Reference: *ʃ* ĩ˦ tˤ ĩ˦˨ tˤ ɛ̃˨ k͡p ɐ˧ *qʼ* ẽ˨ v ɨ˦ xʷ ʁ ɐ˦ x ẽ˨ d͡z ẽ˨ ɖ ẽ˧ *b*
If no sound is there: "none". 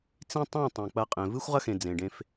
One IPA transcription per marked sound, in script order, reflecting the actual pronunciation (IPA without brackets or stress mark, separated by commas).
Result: t͡s, qʼ, f